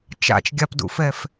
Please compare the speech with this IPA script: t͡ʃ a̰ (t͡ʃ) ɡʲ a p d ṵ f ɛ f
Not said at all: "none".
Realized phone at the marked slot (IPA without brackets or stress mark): t͡ʃ